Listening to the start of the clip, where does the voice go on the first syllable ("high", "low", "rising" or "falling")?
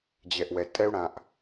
low